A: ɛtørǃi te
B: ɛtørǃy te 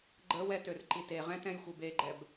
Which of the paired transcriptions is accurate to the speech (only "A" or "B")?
A